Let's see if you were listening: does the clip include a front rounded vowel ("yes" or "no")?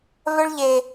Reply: yes